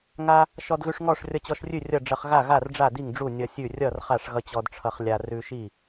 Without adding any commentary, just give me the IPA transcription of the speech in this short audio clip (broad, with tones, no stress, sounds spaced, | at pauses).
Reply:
ŋ a˧ | ʃ ɔ˧ d ɣ ʉ˧ ʂ ŋ ɔ˥˩ ʂ rʲ ʌ˧ t͡ɕ ɔ˧ ʃ rʲ ʉ˥˩ rʲ ʌ˥˩ ɖ͡ʐ ʌ˧ χ ɣ a˥˩ ɣ a˥˩ r ɖ͡ʐ a˥˩ d i˥˩ ŋ ɖ͡ʐ u˥˩ nʲ ʌ˧ sʲ ʉ˥˩ rʲ ʌ˥˩ r χ a˥˩ ʂ ɣ ʌ˧ t͡ɕ ɔ˧ d ʈ͡ʂʰ ʌ˧ χ lʲ a˧ r ʉ˧ ʃ i˥˩